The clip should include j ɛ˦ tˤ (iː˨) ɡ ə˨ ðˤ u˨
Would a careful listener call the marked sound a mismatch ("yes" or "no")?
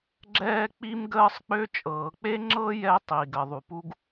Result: yes